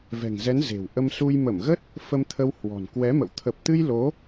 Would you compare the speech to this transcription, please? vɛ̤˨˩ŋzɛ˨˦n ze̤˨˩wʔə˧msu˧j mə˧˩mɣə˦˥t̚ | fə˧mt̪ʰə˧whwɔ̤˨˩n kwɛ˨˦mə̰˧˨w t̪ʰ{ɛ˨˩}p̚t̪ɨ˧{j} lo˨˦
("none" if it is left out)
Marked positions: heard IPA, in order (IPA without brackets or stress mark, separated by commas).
ə˨˩, j